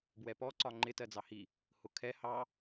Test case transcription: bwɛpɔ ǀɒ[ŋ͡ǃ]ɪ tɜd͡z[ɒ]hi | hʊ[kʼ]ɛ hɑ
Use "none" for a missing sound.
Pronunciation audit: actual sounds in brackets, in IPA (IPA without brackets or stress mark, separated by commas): ŋ͡ǃ, ɑ, kʰ